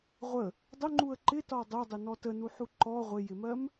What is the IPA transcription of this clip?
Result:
ʁʷ ə | dˤ ʊ ŋ͡ǃ u ə̯ ǃ ɪ t ɒ dˤ ʊ dˤ ɪ n ɔ t ə n u ħ u ǃ ɔ ʁʷ ɪ j ɪ m ɜ m

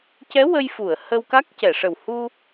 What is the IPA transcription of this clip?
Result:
c ɛ˧˥ w ə˧ j f u˨˩˨ ə̯ h ə˧ w k a˦˥ k̚ c ɛ˨˩˨ ʂ ə˨˩ w h u˧

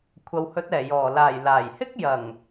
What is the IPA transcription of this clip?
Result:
kʷʰ ɐ˨ w h ɵ˨˥ t̚ ɛː˨˩ j ɔː˨˩ l aː˨˩ j l aː˨˩ j h ɪ˥ k̚ j ɐ˨˩ ŋ

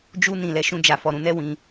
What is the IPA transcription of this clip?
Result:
d͡ʒ u˧ n ĩ˨ l ɛ˧ ʃ ũ˧ d͡ʒ a˨ f ɔ˨ ɾ ũ˧ n ɛ˦ w ĩ˧

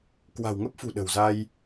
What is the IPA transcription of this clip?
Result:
k w a̤˨˩ w ŋ ə˦˥ p̚ f ṳ˨˩ ɗ ə̤˨˩ w z a˧ j

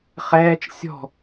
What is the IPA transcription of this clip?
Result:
χ ɛː t͡ʃ sʲ ɔ̤

